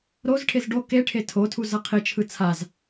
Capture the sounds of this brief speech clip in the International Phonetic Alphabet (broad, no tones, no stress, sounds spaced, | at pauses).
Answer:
ɾ o z ʈʰ e z ɖ o k e ʈʰ e tʰ o tʰ u z ʌ qʰ i t͡ʃʰ ɯ t͡sʰ a z